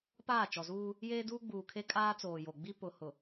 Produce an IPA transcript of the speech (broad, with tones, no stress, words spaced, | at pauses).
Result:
paː˦˨t͡ʃɔ˨zuː˦ | jeː˦duː˦ɡ͡buː˨kʰe˦ kʼaː˦t͡soː˨jo˨ɡ͡bi˦ pʊ˨ hʊ˨